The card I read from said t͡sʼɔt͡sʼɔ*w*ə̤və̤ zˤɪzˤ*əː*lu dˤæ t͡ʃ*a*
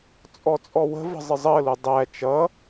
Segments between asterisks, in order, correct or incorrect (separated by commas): correct, correct, incorrect